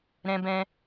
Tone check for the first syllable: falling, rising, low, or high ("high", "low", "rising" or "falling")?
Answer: high